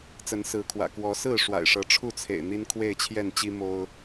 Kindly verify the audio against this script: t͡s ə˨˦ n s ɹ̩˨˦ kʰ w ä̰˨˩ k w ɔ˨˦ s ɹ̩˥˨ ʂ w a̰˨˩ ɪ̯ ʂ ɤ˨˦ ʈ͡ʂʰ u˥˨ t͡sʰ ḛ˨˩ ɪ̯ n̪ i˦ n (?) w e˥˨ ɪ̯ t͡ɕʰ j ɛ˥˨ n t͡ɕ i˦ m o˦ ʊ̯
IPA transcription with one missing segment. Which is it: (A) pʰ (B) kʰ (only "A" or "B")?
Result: B